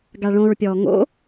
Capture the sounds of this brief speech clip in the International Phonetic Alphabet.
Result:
ɡ a ɭ õ ɹ pʲ ɔː ŋ o̰

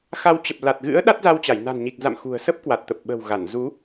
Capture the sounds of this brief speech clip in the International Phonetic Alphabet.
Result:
x a˨˦ w t͡ɕ ə˨˩ p̚ l a˨˩ t̚ ɣ ɨ̰˧˥ ə̯ ɗ a˦˥ t̚ z a˧ w t͡ɕ a˧˩ j n a̤˨˩ n ɲ i˨˩ k̚ z a̰˧˨ m x ṳ˨˩ ə̯ s ə˦˥ p̚ k w a˨˩ t̚ t̪ ə˨˩ p̚ ɓ ə̤˨˩ w ɣ a˧˩ n z u˨˦

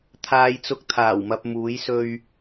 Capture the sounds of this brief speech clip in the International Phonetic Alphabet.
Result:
t̪ʰ aː˧ j t͡s ʊ˧ k̚ t̪ʰ aː˨˩ w m ɐ˨ p̚ m uː˨˧ j s ɵ˧ ɥ

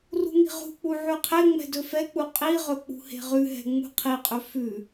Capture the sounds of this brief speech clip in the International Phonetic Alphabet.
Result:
r ṳ ŋ i̤ ʁ ṳ k͡p u ʕ ʉ qʰ e ŋ͡m ɛ̤ d ɵ f ɛ k͡p u qʼ i ʁ ɵ k͡p ṳ h e̤ ʁ ʉ ɦ ɛ̤ ŋ͡m ṳ qʰ i qʼ ɵ f ʉ

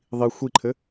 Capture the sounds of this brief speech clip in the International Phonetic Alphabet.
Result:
ðˤ i xʷ i ǃʰ ɘ

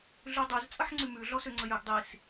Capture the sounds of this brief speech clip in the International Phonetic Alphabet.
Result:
ɮ ʉ dˤ ʉ z t͡sʼ ə ħ ŋ͡ǀ ʉ m ʉ ɮ ɔ s ø ŋ͡ǀ ə j ø ɡ dˤ i s

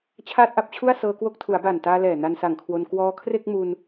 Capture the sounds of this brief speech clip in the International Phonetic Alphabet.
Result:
t͡ɕʰ aː˥˩ t̚ ʔ a˥˩ p̚ t͡ɕʰ u˥˩ a̯ s ɤː˧ k w o˦˥ k̚ tʰ u˩˦ a̯ b a˨˩ n t aː˧ l ɛː˨˩ n a˧ n s a˨˩ ŋ kʰ w o˧ n k w ɔː˧ kʰ r e˥˩ k̚ m u˧ n

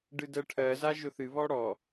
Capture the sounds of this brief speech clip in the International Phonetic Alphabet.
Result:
ɖ ɨ d ɜ ʈʰ ɜ z a ʒ ʊ θ ɨ β ɔ ɽ ɔ

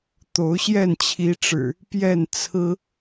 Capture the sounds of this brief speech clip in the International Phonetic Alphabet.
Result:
t̪ o˨˦ ʊ̯ ɕ j ɛ˥˨ n t͡ɕʰ i˨˦ ʈ͡ʂ ɻ̩˨˩ | p j ɛ˥˨ n t͡sʰ ɹ̩˦

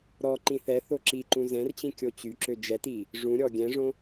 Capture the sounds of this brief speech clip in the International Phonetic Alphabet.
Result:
ɾ ɔ ǃ ĩ θ ɛ θ o ǁ i ǃ ũ z ɛ̃ r t͡ɕ ĩ kʲ o t͡ɕ y ǁ ø d͡ʒ ɛ t i | ʐ ũ ɾʲ ɔ ɡʲ ɛ̃ ʐ õ

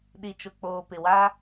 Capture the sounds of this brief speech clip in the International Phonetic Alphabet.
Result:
ɗ i˨ t͡ʃ ʊ˨ k͡p oː˨ p ɪ˨ w a˦

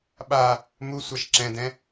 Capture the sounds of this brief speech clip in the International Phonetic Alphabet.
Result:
ɓ a | m u sʷ a ʃ ǁ ɛ̃ d ɛ̃

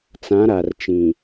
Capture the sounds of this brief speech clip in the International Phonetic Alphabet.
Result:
t͡s ã˨˦ ɾ a˨ r t͡ʃ ĩ˨

